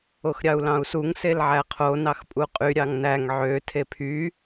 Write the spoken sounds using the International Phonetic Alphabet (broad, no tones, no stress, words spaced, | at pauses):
oxɾʲɑu̯lɑ̃u̯suŋ selʕæqʰo nɑxpʼuqʼy ɾʲɑŋnæŋ ʕø tʰepʰy